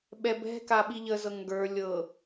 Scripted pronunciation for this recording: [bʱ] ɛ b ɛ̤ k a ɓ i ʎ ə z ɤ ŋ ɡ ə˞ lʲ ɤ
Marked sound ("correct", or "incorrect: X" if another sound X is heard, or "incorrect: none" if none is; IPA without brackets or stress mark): incorrect: ɓ